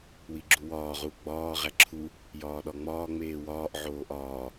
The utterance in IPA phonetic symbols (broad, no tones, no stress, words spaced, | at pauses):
wiɡ͡ǁuwɒː ʁuɡ͡bɒː ʁæǁʰu | jɒːɗɒŋ͡mɒː ŋ͡meːwɒːʔ ʕoːʔɒː